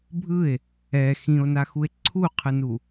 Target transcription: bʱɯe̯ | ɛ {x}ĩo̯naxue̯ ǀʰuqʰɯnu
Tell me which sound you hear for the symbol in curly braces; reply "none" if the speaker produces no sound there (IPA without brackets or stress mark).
x